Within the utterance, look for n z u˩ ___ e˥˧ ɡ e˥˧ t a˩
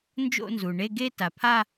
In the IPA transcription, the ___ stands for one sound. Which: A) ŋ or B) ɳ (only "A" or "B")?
B